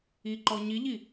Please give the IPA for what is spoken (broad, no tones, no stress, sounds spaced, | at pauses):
i ǃ ɔ ɲ i ʎ i